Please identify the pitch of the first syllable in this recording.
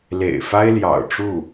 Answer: low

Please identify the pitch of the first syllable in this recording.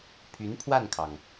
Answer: rising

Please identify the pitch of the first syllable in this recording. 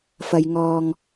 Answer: low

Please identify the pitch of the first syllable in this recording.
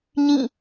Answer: falling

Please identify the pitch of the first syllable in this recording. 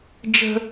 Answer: high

